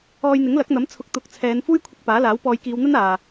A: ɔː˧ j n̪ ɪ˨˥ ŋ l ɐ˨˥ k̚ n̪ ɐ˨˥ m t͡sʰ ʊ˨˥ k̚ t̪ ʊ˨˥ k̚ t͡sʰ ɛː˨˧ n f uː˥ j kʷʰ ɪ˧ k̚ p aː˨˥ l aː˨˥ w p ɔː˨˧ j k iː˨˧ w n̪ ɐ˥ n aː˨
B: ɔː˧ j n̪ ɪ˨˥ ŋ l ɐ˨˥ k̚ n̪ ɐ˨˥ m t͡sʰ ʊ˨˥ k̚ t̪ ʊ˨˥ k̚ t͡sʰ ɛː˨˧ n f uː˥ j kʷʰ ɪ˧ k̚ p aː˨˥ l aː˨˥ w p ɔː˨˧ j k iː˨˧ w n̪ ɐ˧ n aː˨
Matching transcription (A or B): A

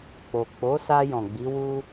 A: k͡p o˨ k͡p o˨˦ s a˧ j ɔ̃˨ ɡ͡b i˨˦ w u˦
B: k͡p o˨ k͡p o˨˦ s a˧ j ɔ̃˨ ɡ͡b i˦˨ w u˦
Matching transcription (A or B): A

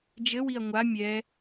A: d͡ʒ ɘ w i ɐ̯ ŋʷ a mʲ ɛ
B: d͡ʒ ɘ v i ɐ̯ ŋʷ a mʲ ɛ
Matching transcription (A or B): A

